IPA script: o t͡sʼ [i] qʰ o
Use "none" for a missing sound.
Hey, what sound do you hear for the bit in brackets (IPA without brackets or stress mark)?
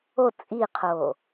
i